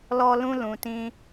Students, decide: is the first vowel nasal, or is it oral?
oral